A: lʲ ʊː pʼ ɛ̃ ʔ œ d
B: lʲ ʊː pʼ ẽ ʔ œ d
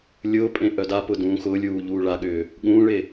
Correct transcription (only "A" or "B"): B